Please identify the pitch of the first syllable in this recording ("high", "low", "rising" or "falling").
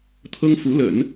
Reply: high